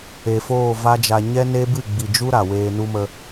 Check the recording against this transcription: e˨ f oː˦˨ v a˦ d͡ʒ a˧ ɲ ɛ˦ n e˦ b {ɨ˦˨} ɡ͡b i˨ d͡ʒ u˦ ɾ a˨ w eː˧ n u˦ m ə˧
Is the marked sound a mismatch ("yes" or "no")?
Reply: no